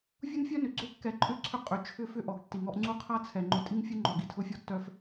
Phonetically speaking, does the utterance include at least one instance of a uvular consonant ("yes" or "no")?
yes